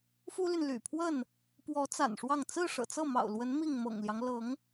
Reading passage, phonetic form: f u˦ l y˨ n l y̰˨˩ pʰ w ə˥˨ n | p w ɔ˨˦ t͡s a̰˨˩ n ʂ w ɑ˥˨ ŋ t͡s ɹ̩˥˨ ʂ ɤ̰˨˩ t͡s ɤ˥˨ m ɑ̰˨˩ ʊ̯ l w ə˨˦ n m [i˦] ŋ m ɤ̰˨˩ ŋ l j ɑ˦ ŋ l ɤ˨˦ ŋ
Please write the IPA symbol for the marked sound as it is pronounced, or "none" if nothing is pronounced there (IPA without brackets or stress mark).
i˥˨